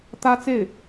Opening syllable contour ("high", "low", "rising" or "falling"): high